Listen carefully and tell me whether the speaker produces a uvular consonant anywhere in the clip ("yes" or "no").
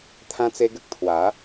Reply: no